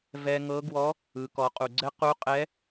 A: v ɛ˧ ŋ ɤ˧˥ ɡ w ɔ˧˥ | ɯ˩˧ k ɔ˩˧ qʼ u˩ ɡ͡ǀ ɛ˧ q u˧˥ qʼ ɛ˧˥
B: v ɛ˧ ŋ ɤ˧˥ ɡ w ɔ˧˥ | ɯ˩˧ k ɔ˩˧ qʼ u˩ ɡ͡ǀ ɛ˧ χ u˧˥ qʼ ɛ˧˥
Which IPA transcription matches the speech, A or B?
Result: A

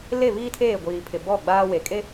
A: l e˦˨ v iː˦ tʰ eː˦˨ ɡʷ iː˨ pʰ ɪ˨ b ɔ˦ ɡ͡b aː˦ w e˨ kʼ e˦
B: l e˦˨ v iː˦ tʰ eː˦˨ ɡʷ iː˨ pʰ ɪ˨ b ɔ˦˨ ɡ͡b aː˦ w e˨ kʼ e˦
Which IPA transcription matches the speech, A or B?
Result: B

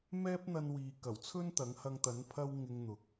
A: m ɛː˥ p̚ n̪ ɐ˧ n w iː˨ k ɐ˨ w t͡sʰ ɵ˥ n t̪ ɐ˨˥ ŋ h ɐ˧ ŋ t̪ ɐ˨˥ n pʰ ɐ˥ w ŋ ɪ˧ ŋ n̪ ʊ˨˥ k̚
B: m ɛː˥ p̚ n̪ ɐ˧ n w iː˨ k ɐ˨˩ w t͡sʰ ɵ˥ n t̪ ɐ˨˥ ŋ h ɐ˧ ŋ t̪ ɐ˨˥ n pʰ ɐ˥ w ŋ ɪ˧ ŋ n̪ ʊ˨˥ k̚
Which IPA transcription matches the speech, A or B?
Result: B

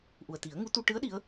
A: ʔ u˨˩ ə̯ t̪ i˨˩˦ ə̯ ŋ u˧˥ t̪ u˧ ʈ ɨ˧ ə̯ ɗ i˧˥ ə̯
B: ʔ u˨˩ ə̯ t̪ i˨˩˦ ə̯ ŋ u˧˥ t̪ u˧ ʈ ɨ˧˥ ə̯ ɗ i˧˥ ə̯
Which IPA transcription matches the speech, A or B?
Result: B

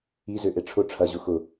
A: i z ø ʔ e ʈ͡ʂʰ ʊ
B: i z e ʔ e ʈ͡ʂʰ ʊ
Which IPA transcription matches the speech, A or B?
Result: A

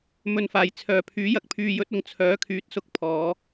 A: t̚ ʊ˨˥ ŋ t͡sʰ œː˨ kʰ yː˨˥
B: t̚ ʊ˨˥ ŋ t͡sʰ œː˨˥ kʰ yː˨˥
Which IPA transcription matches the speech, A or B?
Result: B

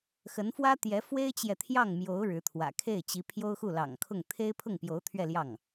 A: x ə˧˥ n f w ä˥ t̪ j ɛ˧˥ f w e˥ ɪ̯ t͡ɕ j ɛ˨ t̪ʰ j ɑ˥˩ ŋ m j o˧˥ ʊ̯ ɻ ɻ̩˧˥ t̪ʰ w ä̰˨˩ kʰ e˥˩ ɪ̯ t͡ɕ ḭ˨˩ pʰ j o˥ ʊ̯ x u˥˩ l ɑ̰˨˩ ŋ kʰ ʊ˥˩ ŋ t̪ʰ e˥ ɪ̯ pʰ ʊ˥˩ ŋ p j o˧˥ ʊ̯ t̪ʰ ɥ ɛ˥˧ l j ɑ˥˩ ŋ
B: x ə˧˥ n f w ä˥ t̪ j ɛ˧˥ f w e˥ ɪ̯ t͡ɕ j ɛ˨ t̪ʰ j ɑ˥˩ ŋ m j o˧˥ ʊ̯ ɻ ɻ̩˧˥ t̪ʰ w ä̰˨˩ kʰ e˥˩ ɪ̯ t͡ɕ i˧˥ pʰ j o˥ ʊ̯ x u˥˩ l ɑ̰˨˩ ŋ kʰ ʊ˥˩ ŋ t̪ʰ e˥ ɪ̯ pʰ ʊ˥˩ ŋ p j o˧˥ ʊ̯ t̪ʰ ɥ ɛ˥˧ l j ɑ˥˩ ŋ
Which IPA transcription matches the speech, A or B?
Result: B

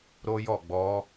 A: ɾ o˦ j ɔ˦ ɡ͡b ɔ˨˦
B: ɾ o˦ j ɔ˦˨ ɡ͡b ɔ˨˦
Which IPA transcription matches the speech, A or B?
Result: B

